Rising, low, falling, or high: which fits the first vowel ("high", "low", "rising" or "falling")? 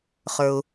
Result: low